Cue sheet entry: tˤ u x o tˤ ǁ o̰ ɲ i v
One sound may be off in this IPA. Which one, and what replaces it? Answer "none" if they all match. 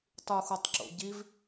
ɲ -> ɟ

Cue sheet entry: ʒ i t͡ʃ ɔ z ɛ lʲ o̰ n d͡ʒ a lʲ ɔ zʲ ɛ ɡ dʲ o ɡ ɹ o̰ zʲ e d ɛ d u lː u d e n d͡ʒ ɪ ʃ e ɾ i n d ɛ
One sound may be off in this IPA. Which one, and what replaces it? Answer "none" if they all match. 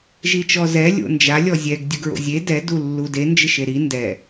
none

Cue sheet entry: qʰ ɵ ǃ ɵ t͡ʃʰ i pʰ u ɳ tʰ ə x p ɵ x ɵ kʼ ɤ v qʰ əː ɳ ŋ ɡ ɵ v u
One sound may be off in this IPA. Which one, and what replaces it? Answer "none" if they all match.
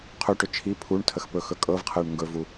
ǃ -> ʈ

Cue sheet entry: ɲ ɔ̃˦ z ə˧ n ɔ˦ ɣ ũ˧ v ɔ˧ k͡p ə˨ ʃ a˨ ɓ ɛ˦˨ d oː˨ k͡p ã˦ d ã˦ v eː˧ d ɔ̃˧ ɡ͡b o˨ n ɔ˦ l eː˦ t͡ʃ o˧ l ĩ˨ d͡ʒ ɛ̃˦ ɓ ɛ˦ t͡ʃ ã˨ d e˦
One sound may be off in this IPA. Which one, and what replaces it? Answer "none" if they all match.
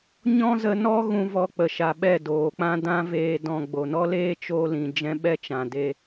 none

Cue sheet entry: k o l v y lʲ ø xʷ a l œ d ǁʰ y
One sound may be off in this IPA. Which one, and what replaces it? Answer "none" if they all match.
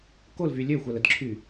œ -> ə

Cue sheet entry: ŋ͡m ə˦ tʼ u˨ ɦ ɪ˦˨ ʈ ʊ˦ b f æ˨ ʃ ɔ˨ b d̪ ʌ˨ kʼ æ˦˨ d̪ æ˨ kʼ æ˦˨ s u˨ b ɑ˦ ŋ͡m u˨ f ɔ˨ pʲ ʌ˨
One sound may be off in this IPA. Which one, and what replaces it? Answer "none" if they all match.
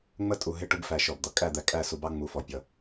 none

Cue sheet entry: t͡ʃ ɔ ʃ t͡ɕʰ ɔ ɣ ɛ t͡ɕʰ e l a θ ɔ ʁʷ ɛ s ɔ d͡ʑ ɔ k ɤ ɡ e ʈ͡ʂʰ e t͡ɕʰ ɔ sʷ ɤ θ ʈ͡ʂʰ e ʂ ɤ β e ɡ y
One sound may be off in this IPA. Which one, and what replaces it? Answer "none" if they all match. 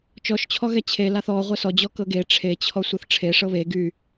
none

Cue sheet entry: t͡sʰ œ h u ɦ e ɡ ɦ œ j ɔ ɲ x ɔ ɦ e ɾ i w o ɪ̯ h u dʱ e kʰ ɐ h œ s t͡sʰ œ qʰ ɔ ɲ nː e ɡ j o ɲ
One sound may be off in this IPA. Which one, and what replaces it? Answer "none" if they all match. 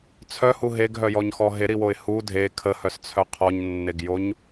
ɐ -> ə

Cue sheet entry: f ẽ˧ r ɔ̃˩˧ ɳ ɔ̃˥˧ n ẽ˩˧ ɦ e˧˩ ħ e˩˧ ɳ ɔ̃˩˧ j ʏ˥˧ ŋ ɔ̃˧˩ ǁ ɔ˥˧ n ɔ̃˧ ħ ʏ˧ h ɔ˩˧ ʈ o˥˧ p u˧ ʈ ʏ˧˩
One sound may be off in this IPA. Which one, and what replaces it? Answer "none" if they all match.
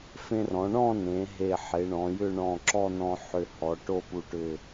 ŋ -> ɳ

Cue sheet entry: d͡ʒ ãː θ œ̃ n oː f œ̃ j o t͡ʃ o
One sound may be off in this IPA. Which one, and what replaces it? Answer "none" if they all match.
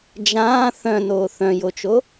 f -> θ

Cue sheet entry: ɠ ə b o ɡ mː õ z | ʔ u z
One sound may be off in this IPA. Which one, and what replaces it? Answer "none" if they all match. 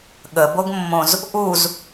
none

